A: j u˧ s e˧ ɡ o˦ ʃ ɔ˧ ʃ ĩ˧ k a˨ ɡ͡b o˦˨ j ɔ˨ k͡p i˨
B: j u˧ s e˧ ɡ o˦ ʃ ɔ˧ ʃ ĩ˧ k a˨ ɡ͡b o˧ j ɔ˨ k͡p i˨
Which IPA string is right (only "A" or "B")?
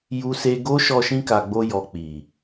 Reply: B